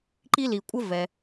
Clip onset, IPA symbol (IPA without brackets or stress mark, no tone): ǃ